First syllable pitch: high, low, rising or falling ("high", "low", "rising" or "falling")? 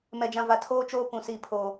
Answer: low